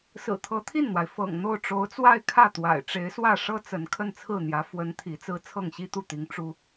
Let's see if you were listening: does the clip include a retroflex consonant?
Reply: yes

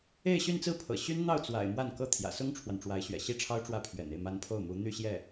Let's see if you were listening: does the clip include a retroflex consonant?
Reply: yes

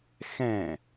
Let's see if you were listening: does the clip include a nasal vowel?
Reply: yes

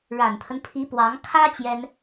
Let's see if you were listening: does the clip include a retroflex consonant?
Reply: yes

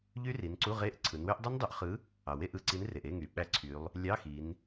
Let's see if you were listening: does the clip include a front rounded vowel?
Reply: yes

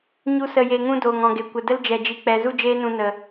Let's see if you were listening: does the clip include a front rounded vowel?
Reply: no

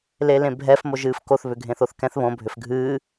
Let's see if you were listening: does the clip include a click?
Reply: no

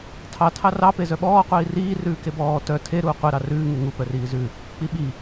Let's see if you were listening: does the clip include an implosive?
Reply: yes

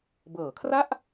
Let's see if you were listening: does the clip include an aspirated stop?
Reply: yes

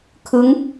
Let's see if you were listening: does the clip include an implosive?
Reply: no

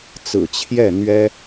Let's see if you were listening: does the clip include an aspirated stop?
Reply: yes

